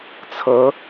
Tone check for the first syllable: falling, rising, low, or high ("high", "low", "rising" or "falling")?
rising